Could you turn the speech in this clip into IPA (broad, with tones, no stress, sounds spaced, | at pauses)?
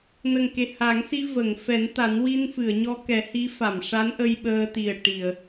n ə˨˩ ŋ k e˨˩ h a˨˩˦ ŋ s i˧ v ə˨˩˨ ŋ f ɛ˨˩˦ n t̪ a˨˩˦ n w i˧ n f ɨ˨˩˨ ə̯ ɲ ɔ˧ k ɛ˨˩˦ h i˧˥ f a˨˩˨ m ʂ a˧˥ n ʔ ə˧ j ɓ əː˧ t̪ i˨˩ ə̯ ʈ i˨˩˨ ə̯